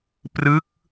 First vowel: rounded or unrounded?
unrounded